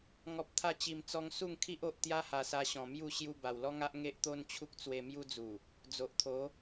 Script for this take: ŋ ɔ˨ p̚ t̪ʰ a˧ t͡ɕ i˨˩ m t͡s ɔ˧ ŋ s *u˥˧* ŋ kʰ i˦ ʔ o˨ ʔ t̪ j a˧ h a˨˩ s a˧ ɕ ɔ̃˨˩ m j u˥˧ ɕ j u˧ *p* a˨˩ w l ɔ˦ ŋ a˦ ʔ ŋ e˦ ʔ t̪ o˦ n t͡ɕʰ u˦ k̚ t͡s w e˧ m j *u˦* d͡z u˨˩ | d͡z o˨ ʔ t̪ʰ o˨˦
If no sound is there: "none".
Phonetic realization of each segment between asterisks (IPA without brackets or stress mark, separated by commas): u˥˧, b, u˦